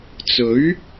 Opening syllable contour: rising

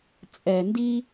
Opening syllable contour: low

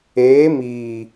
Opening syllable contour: rising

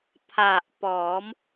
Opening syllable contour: low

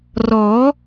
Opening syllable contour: rising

